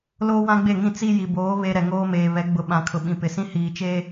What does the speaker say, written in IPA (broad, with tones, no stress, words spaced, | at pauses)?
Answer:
loː˦wã˦ɡ͡be˦˨ŋĩ˦˨ t͡si˦ji˨boː˨˦ βe˦ ɾɛ˨ŋoː˦meː˨ βɛ˨˦ɡ͡bʊ˨˦ ɓã˨kʰʊ˨ɓĩ˨ pɪ˨sĩ˦ hiː˨t͡ʃeː˦